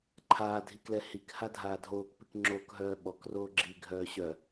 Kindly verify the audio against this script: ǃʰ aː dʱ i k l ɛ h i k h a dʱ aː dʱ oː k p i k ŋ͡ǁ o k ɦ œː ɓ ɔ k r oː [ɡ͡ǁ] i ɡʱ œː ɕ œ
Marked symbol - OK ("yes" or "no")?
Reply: yes